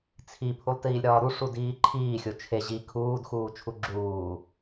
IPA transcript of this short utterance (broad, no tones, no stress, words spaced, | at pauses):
t͡sʰipʰulˠtiːlʲɾɒː ɾuʂudiː ǃʰiːxʲo t͡ʃʰe ʑi kʰuːdxuːt͡ʃʰu ɡ͡ǁuː